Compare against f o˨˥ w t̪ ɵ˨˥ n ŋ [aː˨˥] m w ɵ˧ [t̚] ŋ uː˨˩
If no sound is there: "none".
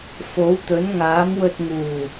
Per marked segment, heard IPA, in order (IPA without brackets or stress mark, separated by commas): aː˨˥, t̚